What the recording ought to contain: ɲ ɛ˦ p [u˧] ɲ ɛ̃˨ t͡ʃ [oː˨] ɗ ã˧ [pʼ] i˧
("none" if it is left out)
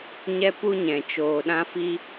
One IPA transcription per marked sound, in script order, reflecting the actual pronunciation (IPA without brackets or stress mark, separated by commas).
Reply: u˦, oː˨, f